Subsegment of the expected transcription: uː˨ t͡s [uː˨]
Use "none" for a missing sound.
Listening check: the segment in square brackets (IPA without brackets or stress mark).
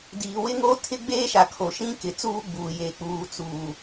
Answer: uː˨